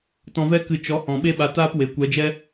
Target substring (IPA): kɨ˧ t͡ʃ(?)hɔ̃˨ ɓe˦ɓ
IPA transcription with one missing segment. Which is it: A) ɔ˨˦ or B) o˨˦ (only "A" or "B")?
A